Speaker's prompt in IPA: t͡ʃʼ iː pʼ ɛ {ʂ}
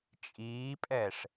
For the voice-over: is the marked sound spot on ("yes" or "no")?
yes